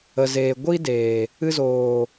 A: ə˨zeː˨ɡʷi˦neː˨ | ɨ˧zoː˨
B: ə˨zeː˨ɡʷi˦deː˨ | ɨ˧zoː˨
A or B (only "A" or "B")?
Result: B